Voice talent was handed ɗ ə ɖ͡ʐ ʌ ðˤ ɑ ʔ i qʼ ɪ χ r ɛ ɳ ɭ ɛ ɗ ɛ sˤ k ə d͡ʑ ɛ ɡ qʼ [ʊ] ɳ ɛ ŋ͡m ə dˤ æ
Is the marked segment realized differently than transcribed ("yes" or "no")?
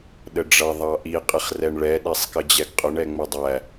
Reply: no